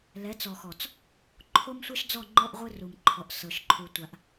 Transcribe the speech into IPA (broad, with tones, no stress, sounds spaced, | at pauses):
l ɛ˨˦ t͡s ɔ˨ x ɔ˨ t͡s | ǃʰ o˦ m sʷ ɛ˦ ʃ d͡z ɔ˦˨ ŋ͡ǃ ɔ˦ ʔ ʁʷ ɯ˦ r u˨ m ǃʰ ɔ˨ ʔ s ɤ˨ ʃ ǃʰ u˨ tʷ a˨ ʔ